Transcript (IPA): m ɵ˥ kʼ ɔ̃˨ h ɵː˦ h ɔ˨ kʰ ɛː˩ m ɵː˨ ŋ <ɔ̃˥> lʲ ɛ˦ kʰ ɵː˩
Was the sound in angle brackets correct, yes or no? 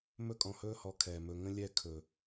no